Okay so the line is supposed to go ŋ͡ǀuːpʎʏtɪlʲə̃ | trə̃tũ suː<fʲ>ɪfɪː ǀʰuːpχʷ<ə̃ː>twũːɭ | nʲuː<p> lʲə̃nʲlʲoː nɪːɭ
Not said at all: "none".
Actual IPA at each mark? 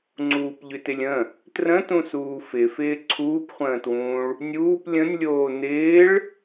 f, ə̃ː, p

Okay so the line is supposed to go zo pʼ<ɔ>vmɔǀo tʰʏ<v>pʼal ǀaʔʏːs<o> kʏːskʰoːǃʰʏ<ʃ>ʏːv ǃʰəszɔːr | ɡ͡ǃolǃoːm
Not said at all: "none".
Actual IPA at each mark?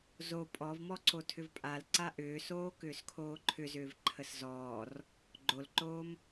ɔ, v, oː, z

